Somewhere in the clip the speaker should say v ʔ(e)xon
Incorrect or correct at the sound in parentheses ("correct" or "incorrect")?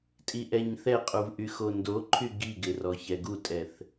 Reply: incorrect